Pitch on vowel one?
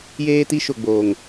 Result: high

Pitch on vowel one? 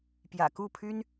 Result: low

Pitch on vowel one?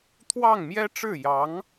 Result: falling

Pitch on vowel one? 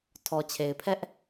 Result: low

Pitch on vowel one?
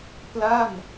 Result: falling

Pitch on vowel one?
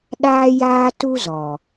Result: high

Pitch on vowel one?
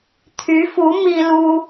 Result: rising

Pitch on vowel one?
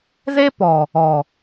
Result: high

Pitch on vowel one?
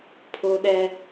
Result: high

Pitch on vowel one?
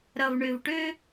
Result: low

